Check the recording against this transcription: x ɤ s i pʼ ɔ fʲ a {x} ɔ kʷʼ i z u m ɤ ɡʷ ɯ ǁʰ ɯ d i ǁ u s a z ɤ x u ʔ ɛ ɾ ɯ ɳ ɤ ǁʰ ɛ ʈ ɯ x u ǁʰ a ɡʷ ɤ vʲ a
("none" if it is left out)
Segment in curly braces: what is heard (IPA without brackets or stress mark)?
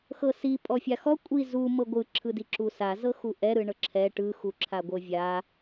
x